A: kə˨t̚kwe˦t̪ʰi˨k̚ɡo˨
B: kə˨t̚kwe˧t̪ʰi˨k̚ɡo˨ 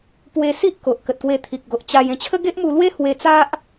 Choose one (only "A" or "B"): B